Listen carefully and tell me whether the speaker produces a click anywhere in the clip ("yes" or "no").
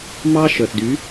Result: no